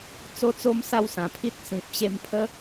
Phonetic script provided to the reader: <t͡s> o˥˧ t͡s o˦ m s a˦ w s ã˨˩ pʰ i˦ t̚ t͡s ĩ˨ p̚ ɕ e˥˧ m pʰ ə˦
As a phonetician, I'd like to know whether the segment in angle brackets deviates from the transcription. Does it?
no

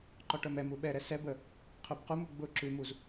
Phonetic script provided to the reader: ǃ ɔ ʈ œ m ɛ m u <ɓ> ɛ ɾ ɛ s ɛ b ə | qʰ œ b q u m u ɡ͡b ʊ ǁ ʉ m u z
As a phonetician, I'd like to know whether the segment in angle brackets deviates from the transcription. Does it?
no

